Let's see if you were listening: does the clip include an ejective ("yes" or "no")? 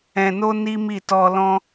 no